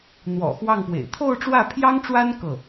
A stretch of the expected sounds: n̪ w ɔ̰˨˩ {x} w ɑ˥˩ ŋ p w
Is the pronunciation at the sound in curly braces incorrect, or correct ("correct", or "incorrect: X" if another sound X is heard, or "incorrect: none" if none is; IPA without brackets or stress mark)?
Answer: correct